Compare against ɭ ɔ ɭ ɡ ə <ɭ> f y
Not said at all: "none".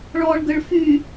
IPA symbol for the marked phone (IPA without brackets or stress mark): ɭ